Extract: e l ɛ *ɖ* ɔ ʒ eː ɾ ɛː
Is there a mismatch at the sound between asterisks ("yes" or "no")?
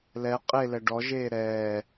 no